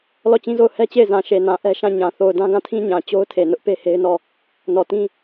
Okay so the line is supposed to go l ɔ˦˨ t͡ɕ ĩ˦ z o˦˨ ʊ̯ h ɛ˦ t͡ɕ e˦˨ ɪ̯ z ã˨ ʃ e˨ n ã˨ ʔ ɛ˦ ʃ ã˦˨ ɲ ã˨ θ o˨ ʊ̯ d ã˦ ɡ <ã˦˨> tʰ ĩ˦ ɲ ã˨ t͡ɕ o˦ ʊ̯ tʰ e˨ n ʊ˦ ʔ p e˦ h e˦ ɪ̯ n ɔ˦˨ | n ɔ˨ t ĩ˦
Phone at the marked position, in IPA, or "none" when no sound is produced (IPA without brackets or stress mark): ã˦˨